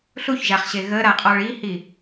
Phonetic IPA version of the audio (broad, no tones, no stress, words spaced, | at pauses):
ɬuçʒaχɕe ɣəɾaqʼɔɭ ihi